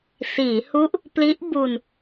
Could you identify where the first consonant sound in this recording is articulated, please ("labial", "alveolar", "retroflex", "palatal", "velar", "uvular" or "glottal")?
alveolar